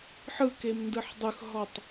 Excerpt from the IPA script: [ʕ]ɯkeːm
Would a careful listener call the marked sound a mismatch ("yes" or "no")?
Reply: yes